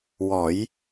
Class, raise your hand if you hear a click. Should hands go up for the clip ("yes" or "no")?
no